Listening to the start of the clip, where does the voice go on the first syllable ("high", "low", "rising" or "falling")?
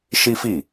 high